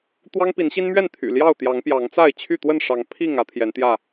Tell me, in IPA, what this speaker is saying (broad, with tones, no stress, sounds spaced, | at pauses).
t̪ w ɑ˦ ŋ p i˨˦ n ɕ i˦ n m ɥ ɛ˥˨ n t̪ʰ y̰˨˩ l j ɑ˥˨ ʊ̯ t̪ j ɑ˨˦ ŋ p j ɑ˨˦ ŋ t͡s a˥˨ ɪ̯ t͡ɕʰ y˥˨ t̪ w ə˥˨ n ʂ ɑ˨˦ ŋ pʰ i˥˨ ŋ ä˦ t̪ʰ j ɛ˨˦ n t̪ j ä˥˨